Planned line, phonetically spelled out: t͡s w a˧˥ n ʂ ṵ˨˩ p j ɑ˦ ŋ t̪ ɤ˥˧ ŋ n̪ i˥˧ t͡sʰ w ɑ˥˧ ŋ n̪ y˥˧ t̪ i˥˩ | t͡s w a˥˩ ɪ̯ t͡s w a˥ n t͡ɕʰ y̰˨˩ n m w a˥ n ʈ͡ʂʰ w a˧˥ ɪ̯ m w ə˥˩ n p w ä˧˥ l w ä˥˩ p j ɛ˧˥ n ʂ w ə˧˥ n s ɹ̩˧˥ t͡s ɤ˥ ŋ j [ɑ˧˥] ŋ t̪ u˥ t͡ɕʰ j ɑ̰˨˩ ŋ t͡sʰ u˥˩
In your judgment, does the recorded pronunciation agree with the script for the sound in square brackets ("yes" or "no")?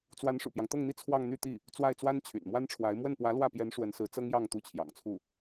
no